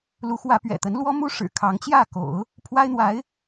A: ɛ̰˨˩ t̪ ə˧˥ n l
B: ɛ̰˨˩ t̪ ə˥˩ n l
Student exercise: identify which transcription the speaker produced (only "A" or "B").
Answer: A